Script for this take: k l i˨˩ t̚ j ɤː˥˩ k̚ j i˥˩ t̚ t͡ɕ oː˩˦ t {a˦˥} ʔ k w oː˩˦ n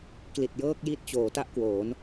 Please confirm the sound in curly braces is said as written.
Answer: no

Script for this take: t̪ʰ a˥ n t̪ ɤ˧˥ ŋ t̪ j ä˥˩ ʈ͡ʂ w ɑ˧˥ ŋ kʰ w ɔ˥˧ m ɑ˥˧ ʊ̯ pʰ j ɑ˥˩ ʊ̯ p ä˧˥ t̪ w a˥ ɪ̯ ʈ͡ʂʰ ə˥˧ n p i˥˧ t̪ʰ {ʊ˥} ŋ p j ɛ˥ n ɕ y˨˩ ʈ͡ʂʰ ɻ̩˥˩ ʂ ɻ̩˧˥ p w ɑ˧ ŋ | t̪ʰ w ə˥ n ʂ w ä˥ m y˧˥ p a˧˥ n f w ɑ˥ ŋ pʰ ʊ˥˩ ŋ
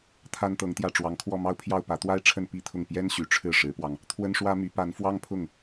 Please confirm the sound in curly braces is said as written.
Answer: no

